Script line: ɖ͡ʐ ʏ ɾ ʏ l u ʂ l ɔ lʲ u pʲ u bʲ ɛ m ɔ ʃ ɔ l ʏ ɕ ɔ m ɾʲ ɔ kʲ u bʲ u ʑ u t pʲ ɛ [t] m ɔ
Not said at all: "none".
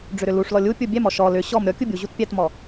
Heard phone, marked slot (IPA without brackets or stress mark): t